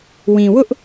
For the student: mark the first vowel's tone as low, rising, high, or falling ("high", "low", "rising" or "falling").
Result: low